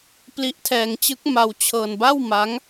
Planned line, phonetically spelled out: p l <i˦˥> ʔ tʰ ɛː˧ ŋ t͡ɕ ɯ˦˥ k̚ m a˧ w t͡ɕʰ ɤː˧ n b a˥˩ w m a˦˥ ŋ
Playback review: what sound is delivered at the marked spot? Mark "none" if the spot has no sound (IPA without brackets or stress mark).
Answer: i˦˥